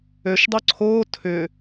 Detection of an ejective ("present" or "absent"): absent